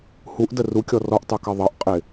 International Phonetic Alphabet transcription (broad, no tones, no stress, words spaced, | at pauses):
huʔdə rukʲɔ rɔʔtˤukɑ ðˤʌʔqʼɪ